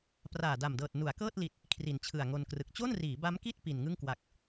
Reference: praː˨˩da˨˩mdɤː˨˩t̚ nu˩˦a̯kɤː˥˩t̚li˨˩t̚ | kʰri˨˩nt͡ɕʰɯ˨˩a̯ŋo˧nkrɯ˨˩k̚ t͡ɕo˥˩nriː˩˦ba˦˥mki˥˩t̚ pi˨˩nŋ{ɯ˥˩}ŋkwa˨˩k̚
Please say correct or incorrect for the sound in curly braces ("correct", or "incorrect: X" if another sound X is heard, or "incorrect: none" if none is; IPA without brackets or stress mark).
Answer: correct